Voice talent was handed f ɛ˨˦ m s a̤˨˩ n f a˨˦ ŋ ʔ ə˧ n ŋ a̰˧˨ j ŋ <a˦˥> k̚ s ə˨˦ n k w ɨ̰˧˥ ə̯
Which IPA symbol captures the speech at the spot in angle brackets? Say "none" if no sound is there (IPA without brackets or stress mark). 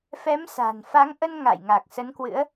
a˨˩